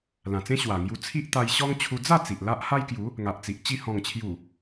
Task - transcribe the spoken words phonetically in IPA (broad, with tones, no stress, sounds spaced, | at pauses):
l ã˨˩ t͡s ẽ˦ ɕ w a˨˩ ŋ j u˧ t͡sʰ i˦ ʔ t̪ a˧ j ɕ ɔ˦ ŋ t͡ɕʰ u˧ d͡z a˥˧ t͡s i˨ ʔ l a˦ ʔ h a˦ j k j u˨˦ | ŋ a˨ ʔ t͡s i˨ ʔ t͡ɕ i˥˧ h ɔ̃˨˩ ŋ t͡ɕʰ j u˨˩